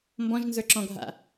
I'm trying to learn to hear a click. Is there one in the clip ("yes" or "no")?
yes